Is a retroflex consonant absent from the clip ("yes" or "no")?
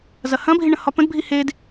no